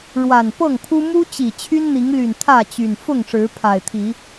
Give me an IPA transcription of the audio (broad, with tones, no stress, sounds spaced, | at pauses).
ɻ w a˨˩ n p ɤ˥˨ ŋ pʰ u˦ m u˦ t͡ɕ i˨˩ t͡ɕʰ y˦ n n̪ i˨˦ ŋ l y˨˩ n t̪ʰ ä˥˨ t͡ɕ y˨˩ n f ʊ˥˨ ŋ ʂ ɻ̩˨˦ pʰ a˨˩ ɪ̯ t̪ʰ i˨˦